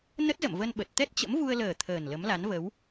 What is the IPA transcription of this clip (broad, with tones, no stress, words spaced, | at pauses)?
nə˦˥t̚zə̰˧˨mvə˧n ɓə˨˩t̚ t̪ɛ˦˥t̚t͡ɕə̰˧˥mvu˧ə̯ləː˨˩ t̪ʰəː˨˩nlə˨˦mla˨˦nvə˨˦w